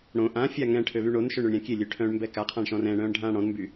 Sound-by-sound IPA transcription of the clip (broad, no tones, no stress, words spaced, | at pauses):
ɽõ ʔãfʲa ŋɛ̃ʈʰøβy ɳonʃøɳøɳɾʲã kʲelʲøʈʰœ̃ːɳmbɛ kaqʰãɳʃɔ̃ rɛ̃ɳœ̃ːɳɖʱãː ɽɔ̃nmby